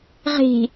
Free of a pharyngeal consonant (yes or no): yes